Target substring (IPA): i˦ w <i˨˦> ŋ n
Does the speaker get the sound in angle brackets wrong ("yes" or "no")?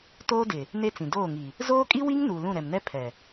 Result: yes